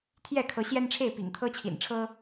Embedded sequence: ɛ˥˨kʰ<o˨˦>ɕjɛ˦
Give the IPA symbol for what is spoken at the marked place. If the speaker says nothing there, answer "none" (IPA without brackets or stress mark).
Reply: ɤ˨˦